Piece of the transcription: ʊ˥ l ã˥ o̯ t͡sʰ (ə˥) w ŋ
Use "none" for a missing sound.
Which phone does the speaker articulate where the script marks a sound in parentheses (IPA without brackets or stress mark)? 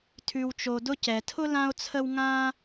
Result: ə˥